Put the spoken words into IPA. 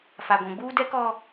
fa˨ɡʷũ˨ɡ͡buː˦ dɛ˦kɔ˦

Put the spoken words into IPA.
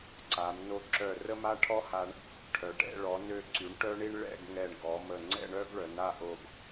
ǀa˩˧m no˧˩ǁœ˧˩rə˥ma˥ ʈʰɔ˥ha˧ɳ | ʈʰœ˩˧ ʈɛ̰˥˧ ɭɔ˩˧nø˧ǀy˩˧ɳ ʈœ˥ɳi˥ɳɭɛ̰˥˧ɡŋɛ˧˩ɳ ɡɔ˩˧mə˧˩ ŋ͡ǀɛ̰˥˧ ɳœ˥ɡɭœ˩˧na˥˧ʔo˧˩ɡ

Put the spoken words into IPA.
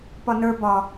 pɒnə˞ bɒ

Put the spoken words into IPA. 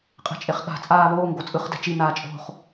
qʼe̤t͡ʃʼeχɠa̤ t͡sʼaːβoːŋ ɡot͡sʼɯχ dɛ̤t͡ʃi naːt͡ʃʼo̤χ

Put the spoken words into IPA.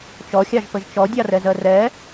t͡ʃɔxʲɑʒpəʒ t͡ʃɔdʲɑrɛzɜ rɛ

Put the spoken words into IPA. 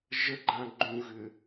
ʒəɡ͡ǃã ɡ͡ǃũɣʏ

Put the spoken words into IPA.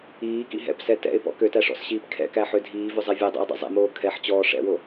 iːkḭ ɦɛ̰psɛ tɛ̰ɪ̯pɔ̰ køtæʂɔ̰sɕiːp kʰɛ̰kæħø dʱiːvøzˤɛ vʲɛdˤɛ̰ɪ̯dˤɛ̰ zˤɛ̰moː kʰɛħt͡ɕɔː ʂɛ̰wo

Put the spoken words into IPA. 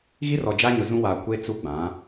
ɣi˦rɔ˨d͡ʒa˦ɲʊ˨ zũ˦waː˨ kʷe˦ t͡su˦ɡ͡bã˨˦

